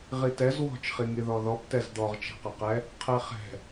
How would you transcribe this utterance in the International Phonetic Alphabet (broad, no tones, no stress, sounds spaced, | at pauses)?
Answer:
ʁ i t ɛ z w ɔ̤ t͡ʃ χ i ŋ i ð ɔ ð ɔ p t ɛ z d̪ ɔ ʁ t͡ʃ ɛ̤ q ɐ q ɛ | qʰ ɛ χ ɛ̤